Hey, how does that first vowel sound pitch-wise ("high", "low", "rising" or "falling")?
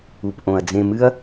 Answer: low